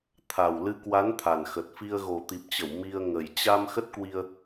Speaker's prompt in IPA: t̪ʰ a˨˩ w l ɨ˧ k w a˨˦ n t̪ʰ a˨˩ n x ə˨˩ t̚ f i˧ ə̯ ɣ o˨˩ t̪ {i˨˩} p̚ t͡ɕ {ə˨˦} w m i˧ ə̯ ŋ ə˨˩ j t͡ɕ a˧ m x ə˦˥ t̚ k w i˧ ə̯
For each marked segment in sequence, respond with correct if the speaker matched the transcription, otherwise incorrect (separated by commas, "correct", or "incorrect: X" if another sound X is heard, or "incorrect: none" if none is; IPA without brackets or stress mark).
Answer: correct, incorrect: ə˧˩